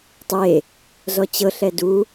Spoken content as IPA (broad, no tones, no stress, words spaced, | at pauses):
tˤe | zɔt͡ɕɤɬɛ du